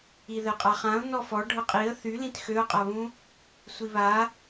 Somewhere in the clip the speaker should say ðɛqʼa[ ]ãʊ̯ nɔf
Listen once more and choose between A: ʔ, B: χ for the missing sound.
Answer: B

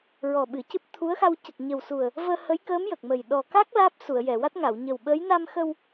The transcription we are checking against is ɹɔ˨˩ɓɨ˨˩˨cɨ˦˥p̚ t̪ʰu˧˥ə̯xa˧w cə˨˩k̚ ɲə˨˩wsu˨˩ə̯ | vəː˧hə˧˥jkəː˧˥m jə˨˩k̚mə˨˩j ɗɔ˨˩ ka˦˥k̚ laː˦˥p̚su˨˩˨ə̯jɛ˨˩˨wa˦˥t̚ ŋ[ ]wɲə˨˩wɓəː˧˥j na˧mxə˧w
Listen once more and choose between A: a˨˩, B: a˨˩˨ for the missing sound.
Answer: B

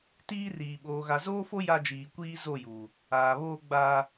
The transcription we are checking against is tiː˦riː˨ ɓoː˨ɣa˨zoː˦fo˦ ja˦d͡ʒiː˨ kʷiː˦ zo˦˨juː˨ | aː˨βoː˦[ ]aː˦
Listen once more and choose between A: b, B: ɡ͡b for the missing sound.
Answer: B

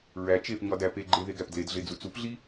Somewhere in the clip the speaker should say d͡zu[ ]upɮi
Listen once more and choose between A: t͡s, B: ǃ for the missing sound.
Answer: A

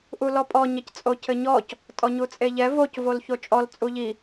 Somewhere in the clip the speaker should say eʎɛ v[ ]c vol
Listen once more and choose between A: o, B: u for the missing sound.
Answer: A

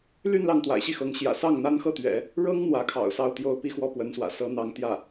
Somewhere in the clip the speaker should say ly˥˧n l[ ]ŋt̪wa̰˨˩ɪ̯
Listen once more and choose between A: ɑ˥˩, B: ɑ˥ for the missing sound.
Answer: A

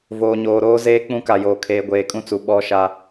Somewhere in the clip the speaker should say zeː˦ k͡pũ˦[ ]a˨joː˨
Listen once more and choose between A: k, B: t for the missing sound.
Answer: A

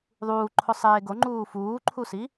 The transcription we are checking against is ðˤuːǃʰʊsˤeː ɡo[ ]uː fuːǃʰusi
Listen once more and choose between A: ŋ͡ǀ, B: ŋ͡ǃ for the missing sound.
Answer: B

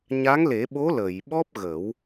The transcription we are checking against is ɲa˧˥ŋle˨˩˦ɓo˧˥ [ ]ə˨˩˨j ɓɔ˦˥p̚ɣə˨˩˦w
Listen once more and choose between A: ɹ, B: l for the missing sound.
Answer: B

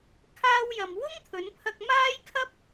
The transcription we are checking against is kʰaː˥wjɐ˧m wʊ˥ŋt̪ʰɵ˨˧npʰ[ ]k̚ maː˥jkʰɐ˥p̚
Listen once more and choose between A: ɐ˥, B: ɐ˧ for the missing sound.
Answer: B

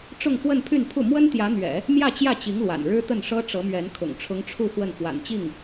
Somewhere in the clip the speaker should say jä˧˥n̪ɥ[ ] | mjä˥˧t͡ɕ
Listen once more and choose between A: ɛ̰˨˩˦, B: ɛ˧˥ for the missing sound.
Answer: A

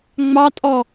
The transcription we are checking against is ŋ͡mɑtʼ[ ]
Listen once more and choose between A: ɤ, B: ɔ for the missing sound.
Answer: B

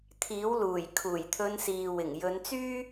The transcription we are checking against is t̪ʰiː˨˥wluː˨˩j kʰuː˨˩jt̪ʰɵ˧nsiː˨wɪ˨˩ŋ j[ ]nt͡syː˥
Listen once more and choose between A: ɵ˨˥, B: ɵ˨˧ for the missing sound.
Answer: B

